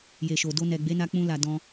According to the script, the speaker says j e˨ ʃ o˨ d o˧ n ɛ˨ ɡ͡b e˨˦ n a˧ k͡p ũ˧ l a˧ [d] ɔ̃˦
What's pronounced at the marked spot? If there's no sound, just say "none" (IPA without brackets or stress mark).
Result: d